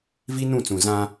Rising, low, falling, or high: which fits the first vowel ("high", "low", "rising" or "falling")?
high